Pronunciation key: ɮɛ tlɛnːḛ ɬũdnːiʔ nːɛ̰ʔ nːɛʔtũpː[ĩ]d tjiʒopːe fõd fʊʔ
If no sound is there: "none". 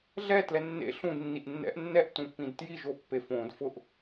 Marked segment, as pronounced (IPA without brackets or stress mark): ĩ